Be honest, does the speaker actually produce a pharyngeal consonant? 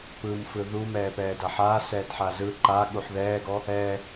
yes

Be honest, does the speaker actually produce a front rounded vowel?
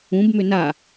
yes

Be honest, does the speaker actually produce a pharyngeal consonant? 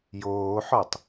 yes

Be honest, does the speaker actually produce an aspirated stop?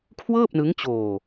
yes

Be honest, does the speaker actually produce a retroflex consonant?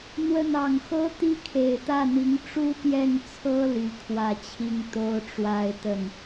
yes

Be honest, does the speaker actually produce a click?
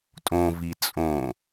no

